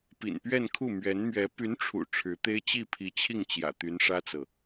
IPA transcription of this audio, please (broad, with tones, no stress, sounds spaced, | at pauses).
p ḭ˨˩ n p ɥ ɛ˥˧ n kʰ u˥˩ m ɥ ɛ˧˥ n m ɥ ɛ˧˥ p y˧˥ n ʈ͡ʂʰ ṵ˨˩ ʈ͡ʂʰ ɻ̩˧˥ t̪ e˥ ɪ̯ t͡ɕ i˥˩ pʰ i˧˥ t͡ɕʰ i˥˩ ŋ t͡ɕ j ä̰˨˩ t̪ y˧˥ n ʂ ä˥ t͡s ɤ˨